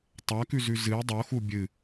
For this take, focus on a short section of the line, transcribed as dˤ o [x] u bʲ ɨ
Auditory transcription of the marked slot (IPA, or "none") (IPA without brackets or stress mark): x